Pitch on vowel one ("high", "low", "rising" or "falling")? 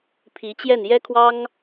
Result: rising